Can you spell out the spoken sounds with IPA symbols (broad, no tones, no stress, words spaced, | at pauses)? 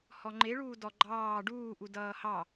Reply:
hɔŋ͡ǃeɭuː dɔɡ͡ǃɑː ɖuːʔu dʌːhɑ